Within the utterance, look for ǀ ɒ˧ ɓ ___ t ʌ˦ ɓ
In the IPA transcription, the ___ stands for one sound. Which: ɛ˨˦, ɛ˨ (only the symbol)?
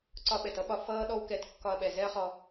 ɛ˨